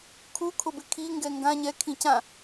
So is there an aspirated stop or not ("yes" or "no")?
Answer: yes